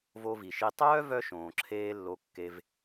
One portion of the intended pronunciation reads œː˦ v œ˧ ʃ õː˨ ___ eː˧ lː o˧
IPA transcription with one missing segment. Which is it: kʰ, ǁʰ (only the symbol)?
ǁʰ